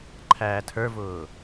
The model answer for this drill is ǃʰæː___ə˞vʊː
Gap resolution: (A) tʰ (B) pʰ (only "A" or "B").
A